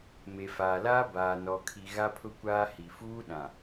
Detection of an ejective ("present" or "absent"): absent